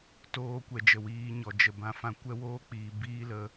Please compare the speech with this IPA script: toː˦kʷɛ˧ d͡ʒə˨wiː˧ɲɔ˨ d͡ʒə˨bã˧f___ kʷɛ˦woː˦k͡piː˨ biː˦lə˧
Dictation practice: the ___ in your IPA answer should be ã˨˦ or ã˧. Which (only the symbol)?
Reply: ã˧